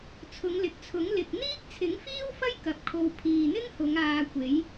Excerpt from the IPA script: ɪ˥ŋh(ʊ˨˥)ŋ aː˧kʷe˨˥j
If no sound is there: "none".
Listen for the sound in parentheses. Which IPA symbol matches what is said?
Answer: ʊ˨˧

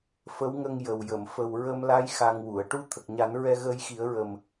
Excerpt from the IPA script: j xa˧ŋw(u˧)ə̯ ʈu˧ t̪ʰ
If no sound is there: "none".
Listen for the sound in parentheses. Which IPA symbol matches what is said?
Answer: u˨˩˨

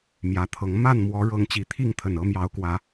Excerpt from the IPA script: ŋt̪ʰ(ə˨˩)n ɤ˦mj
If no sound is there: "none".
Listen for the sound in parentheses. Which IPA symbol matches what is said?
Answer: ə˨˩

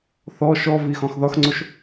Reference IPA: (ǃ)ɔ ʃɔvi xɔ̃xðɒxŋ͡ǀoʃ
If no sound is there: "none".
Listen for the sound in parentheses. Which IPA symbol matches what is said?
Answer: θ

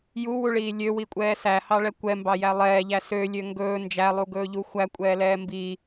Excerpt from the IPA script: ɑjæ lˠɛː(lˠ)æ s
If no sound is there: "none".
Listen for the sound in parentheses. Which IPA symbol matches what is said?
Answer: ʎ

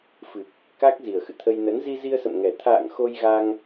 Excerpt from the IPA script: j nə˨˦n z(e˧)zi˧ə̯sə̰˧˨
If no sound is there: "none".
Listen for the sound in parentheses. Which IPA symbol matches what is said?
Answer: i˧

